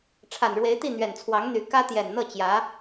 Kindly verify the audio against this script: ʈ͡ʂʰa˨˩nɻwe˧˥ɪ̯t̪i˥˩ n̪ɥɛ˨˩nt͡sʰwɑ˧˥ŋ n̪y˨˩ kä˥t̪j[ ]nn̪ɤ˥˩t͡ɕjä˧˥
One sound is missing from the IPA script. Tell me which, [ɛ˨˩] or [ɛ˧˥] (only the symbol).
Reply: ɛ˨˩